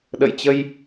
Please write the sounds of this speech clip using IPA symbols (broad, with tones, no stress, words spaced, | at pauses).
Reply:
ɗə̰˧˨jt͡ɕə˧j